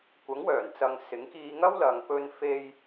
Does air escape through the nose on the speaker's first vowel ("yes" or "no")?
no